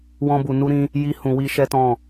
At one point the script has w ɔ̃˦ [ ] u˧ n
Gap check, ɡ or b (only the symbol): b